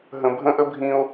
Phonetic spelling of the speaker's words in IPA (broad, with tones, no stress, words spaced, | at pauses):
ɦə̃˨bʱə̃˦ʔə˦ bʱĩ˦o̯